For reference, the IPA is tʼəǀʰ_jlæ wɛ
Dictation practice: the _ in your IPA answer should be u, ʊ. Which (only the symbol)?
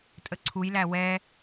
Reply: u